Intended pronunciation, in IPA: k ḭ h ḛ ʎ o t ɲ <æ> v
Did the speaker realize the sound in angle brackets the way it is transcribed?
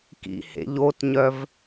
no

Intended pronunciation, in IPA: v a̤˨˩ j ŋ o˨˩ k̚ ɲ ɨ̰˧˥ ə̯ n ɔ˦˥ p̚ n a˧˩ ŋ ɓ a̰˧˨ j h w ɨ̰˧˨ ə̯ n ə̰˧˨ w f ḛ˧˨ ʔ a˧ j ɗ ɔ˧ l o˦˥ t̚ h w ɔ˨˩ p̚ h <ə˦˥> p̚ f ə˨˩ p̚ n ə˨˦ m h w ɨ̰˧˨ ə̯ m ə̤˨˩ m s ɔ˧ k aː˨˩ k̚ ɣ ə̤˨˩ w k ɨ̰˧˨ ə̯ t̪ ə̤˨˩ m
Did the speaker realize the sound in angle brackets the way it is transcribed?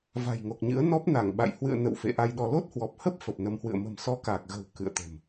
yes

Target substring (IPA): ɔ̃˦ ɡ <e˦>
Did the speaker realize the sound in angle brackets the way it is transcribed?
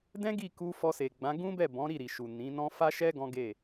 no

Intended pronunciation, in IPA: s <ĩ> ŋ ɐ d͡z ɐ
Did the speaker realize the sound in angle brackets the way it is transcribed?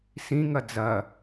yes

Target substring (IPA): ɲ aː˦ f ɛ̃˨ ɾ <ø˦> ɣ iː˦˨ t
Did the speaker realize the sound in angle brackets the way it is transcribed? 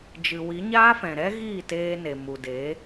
no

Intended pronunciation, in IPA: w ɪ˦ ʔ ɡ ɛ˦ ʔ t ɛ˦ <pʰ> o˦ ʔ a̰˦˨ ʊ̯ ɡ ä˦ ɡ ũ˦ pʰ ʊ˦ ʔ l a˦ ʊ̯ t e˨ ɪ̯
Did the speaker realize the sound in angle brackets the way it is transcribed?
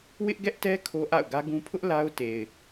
no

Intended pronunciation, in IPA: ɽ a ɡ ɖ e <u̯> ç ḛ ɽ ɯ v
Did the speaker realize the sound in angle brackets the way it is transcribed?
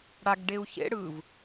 yes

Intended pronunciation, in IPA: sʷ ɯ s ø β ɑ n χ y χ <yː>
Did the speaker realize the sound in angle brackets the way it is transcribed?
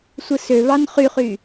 yes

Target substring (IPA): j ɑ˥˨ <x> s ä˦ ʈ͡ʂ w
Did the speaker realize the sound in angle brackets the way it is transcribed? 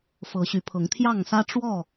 no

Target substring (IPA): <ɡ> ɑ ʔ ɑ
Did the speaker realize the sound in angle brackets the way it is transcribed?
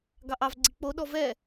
yes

